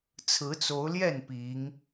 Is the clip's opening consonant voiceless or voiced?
voiceless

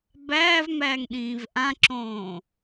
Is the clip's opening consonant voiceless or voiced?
voiced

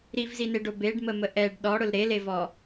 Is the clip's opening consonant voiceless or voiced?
voiced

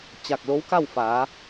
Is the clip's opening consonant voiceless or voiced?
voiceless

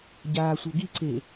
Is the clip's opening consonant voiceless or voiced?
voiced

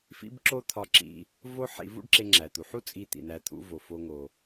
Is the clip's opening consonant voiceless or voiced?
voiceless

